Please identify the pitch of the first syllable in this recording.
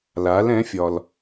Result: rising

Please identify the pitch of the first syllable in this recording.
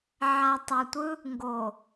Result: low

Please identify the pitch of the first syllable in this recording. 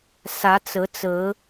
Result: rising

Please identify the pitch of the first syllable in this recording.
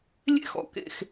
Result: high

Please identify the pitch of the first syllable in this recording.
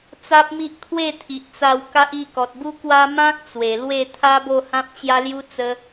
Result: high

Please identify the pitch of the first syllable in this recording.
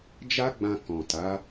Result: high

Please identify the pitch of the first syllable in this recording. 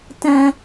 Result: low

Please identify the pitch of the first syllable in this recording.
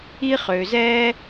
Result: high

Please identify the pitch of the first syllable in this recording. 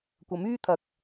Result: rising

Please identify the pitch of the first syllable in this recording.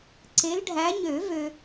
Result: rising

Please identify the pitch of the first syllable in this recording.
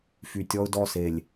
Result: low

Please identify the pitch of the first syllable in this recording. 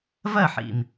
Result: falling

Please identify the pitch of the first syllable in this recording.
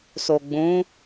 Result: low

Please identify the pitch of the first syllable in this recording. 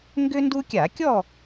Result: high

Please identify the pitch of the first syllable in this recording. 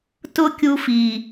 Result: high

